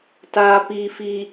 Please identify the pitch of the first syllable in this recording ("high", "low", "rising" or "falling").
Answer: low